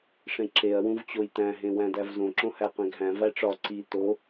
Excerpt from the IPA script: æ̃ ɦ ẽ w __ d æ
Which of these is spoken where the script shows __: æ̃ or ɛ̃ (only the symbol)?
æ̃